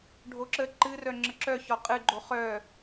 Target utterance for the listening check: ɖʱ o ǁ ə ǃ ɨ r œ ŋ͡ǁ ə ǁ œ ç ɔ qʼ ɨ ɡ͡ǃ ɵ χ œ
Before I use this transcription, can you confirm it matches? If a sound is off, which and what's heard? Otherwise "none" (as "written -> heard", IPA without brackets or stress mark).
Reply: ɵ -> o